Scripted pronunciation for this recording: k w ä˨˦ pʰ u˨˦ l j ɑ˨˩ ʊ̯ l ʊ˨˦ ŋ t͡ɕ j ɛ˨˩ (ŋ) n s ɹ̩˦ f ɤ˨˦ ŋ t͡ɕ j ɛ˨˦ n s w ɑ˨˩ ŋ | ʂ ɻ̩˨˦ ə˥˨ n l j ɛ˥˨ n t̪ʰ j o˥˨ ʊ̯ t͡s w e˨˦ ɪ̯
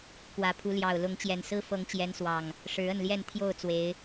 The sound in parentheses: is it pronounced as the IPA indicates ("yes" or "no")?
no